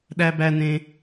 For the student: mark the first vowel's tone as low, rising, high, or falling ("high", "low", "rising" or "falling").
high